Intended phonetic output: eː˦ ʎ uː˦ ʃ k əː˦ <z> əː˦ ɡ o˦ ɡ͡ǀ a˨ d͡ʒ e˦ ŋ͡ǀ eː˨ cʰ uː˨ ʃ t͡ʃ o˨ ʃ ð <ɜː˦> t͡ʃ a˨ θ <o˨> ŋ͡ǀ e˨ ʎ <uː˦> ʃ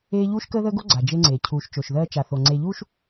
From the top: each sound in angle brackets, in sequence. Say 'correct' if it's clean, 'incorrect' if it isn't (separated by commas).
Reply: incorrect, correct, correct, correct